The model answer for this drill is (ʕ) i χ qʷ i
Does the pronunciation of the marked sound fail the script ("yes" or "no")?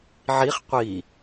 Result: no